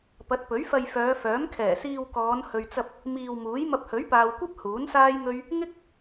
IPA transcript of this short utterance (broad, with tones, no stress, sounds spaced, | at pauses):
p ɐ˨˥ t̚ p ɵ˨˥ ɥ f ɐ˧ j f œː˨˧ f œː˨˥ m kʰ ɛː˨˩ s iː˧ w k ɔː˨˧ n h ɵ˨ ɥ t͡s ɐ˧ p̚ | m iː˧ w m uː˨˥ j m ɐ˧ p̚ h ɵ˨˥ ɥ p aː˨ w kʷ ɐ˥ p̚ h uː˨˥ n s aː˥ j ŋ ɵ˥ ɥ | ŋ ɪ˥ k̚